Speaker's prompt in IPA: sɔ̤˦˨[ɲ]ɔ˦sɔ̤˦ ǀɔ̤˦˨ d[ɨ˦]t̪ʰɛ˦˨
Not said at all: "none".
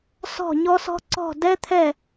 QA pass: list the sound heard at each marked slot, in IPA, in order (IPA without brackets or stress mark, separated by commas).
ɲ, ɛ˦